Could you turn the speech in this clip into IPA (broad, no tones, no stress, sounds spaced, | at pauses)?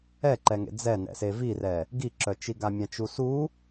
ɛ ǃ ɛ ŋ ḛ d͡z ɛ n ɛ̰ s e v i r ɛ | ɡ i ǁ œ t͡ʃ i ɡ a mʲ ã t͡ʃ u s u